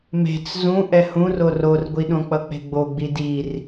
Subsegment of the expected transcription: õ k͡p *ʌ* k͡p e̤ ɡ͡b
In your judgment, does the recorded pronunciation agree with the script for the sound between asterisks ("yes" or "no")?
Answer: yes